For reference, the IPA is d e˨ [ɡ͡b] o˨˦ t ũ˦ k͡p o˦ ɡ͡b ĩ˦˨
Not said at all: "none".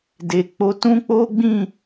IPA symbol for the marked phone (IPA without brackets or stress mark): k͡p